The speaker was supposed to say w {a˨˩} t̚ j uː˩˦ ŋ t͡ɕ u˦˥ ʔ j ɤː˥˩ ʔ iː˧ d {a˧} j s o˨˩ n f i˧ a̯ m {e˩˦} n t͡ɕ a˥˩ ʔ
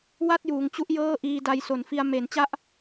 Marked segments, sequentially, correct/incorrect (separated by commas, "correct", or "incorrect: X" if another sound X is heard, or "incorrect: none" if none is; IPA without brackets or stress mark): incorrect: a˥˩, correct, correct